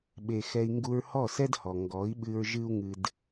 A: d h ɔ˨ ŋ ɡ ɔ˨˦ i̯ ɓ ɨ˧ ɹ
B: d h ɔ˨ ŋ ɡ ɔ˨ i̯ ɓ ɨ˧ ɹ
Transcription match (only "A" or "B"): A